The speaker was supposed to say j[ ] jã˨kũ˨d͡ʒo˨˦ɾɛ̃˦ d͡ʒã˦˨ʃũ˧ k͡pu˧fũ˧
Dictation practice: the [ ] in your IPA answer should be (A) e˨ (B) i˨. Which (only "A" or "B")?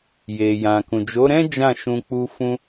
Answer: A